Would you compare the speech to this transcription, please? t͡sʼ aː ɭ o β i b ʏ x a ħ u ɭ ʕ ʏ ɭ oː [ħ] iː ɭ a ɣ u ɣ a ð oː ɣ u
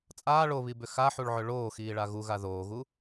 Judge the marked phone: incorrect: x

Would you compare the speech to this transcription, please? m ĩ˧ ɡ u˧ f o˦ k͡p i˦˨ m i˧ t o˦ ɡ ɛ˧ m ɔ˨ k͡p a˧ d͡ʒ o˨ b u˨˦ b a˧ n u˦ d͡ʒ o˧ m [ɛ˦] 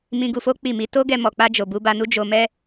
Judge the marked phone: correct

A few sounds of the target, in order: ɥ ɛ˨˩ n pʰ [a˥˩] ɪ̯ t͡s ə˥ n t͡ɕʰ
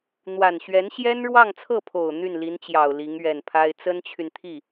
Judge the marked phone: incorrect: a˥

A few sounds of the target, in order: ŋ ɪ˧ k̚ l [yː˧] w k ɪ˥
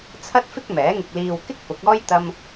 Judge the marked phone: incorrect: iː˧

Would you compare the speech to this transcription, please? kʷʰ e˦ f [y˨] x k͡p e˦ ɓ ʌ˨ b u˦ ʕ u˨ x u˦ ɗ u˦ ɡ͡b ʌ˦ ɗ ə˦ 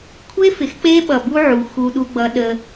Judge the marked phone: incorrect: ɪ˨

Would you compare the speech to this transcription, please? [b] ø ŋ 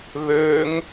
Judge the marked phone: incorrect: β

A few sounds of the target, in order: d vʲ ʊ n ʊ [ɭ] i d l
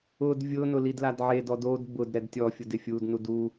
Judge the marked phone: incorrect: l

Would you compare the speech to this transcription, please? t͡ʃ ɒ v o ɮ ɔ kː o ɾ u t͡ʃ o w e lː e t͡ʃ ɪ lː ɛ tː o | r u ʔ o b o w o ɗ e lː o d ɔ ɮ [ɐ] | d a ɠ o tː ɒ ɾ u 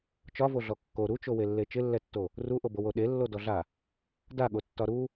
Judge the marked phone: incorrect: a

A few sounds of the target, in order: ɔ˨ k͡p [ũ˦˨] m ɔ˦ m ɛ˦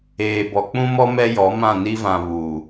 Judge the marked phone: incorrect: ũ˦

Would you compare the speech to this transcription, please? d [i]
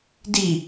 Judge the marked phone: correct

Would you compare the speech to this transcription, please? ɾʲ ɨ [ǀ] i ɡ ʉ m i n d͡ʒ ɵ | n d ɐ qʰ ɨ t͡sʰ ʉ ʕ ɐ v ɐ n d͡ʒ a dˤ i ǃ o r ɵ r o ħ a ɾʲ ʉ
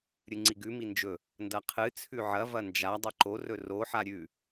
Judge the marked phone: incorrect: ŋ͡ǀ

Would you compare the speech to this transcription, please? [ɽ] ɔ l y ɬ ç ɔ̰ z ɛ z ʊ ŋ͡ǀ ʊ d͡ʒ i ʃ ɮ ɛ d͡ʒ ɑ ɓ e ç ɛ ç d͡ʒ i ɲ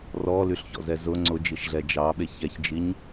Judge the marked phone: incorrect: r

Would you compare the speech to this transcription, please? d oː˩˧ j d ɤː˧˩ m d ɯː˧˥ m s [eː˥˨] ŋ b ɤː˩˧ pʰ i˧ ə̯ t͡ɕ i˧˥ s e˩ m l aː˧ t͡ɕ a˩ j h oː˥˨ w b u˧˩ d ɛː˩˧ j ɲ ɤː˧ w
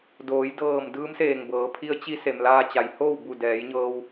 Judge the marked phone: incorrect: eː˧˩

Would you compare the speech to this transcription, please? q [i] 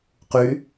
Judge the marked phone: incorrect: y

